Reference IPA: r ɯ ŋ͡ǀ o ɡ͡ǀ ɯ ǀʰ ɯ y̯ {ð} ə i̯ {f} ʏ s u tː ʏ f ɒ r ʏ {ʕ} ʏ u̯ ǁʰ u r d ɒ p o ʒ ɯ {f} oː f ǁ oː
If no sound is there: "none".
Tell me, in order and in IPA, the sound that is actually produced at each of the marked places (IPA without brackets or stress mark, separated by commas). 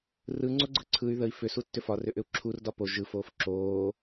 ð, f, ʔ, f